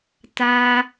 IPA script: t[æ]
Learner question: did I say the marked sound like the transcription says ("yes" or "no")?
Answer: no